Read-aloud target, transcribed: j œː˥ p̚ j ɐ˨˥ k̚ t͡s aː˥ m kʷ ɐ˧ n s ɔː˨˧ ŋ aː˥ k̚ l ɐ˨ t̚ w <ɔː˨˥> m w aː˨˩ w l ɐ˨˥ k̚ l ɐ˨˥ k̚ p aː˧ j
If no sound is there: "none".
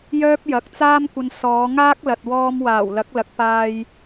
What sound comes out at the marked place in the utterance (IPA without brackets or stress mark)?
ɔː˧